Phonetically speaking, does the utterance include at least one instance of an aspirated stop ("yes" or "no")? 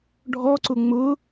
no